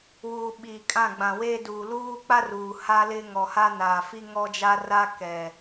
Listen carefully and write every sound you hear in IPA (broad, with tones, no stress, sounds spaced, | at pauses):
w uː˨ ɓ iː˨ kʼ ã˦˨ ɡ͡b ã˨ w eː˦ d uː˨ l uː˦ k͡p a˦ r uː˨ h a˦ l ɪ˦ ŋ ɔ˨ h a˦ n aː˨ f i˦ ŋ ɔ˦ d͡ʒ a˦ r a˦ k ɛ˨